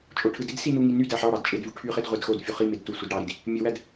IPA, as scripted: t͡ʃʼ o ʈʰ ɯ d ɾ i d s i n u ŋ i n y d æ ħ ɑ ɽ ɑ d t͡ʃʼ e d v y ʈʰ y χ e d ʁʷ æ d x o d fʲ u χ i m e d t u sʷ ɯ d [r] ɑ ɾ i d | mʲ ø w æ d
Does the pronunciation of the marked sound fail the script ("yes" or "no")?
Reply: yes